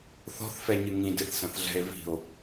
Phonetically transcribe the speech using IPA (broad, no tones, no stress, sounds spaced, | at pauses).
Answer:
θ ɔ̤ θ f ɛ ɲ ɨ ŋ ĩ d ɨ θ s ɐ̃ θ ɮ ɛ̤ e̯ v i̤ o̯